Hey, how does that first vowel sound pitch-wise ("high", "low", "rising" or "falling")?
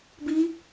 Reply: high